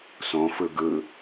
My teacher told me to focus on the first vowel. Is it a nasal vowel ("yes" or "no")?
yes